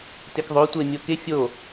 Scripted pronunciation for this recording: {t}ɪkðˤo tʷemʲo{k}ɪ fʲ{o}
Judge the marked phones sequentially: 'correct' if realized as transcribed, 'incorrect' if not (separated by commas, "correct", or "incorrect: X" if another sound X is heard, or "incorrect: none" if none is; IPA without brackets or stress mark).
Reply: correct, correct, correct